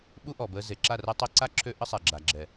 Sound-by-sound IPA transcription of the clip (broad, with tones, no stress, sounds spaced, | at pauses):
ɓ u˦ ʔ ɔ˨ b əː˧ z e˨ ǁ a˦˨ r əː˦ tˤ e˦ ǀ a˦ ǁʰ ø˦ ʔ ə˦ sˤ ɛ˨ ɡ͡ǁ a˨ ɡ͡ǁ ɛ˨